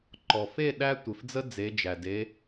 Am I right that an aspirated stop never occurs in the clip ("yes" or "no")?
yes